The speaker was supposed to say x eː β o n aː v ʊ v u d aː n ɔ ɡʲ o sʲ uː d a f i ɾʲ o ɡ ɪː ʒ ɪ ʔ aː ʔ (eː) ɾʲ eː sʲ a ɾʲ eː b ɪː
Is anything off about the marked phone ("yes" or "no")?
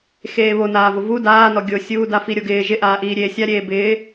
yes